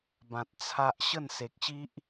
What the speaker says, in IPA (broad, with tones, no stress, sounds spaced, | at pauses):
b ã˨ t̚ t͡sʰ a˦ ʔ ɕ ə˥˧ n s e˨ k̚ ɕ i˦ ʔ